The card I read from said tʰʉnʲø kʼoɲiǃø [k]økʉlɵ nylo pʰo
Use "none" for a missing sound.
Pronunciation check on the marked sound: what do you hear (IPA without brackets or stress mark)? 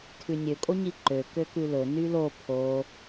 k